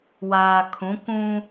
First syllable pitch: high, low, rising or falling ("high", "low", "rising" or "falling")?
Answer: low